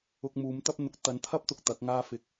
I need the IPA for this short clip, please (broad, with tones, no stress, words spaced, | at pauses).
ʊ˧k̚ muː˨˥mt̪ɐ˥p̚n̪ʊ˧k̚ t̪ɐ˨˥nt̪ʰɐ˥p̚t̪ʊ˨k̚ t̪ɐ˨˥k̚ŋaː˥ fɪ˧k̚